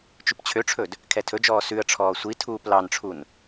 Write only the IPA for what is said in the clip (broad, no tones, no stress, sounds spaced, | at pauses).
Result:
t͡ʃ ʉ p t͡ɕʰ ø ʈ͡ʂʰ ɵ d | kʰ ɛ tʰ ɵ d͡ʒ ɔː s ʉ ə̯ ʈ͡ʂʰ ɔː sʷ i tʰ uː p l ɑ n ʈ͡ʂʰ u n